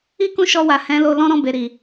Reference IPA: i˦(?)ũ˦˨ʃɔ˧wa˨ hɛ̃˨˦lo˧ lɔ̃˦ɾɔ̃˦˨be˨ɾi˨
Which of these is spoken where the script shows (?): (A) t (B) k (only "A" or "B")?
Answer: B